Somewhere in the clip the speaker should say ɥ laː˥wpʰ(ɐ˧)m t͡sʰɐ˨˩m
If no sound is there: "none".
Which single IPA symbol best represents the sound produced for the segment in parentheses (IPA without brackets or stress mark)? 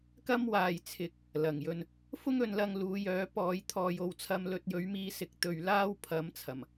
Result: ɐ˨˥